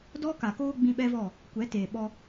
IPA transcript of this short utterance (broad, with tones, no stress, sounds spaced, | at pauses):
d ɔ˦ k a˨ k oː˦ ɡ͡b ĩ˧ ɓ ɛ˦ v ɔ˦˨ | kʷ ɛ˨˦ t eː˨ ɓ ɔ˧